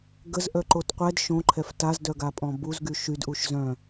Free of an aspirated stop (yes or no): no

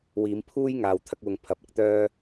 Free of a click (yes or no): yes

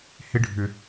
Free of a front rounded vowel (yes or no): no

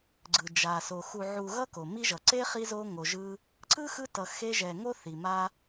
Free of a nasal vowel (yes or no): yes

